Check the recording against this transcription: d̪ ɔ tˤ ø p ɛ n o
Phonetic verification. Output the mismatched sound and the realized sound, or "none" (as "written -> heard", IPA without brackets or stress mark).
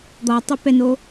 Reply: none